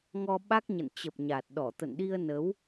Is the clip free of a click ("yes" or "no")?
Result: yes